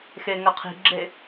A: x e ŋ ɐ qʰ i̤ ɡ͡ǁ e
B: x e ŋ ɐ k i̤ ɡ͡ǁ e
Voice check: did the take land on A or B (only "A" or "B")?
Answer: A